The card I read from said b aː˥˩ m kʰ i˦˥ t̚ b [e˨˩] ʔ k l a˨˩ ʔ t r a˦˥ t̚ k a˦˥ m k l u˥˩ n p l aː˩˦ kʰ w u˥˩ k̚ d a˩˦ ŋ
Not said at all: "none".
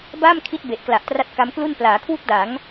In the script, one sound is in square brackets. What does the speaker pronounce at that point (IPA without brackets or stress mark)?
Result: e˨˩